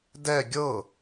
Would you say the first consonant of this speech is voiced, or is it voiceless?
voiced